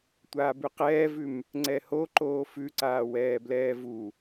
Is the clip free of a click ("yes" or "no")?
no